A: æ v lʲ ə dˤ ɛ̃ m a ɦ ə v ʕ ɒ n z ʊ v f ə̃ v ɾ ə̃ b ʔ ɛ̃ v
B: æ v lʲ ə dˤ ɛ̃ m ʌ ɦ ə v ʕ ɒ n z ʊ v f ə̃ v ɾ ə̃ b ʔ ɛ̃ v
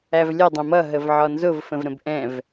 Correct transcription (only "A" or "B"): B